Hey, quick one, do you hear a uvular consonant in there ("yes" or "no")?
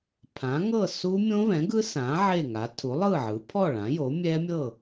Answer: no